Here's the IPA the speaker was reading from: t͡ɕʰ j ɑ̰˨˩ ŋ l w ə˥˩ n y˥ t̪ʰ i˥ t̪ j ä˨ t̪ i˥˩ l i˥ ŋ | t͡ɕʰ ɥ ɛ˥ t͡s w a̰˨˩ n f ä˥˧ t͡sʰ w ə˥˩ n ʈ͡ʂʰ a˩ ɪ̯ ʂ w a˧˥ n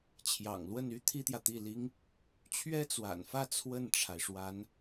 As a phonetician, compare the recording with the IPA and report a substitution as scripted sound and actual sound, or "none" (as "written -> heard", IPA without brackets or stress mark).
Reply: none